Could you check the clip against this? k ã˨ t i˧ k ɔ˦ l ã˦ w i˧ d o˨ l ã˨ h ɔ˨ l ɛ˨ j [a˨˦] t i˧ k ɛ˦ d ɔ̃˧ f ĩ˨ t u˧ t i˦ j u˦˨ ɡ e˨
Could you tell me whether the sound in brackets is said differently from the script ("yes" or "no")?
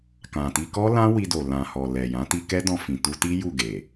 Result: yes